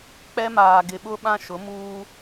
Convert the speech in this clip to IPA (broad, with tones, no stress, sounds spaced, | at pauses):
k͡p ɛ˦ m aː˨ ɡ ɪ˨ ɓ ʊ˦ ɓ ã˦ ʃ ʊ˨˦ m uː˦